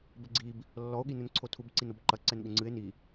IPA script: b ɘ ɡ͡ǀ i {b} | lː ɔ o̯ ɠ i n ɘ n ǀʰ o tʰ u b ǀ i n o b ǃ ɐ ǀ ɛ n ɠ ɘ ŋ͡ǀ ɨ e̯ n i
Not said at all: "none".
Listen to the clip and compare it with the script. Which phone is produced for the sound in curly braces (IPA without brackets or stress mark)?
b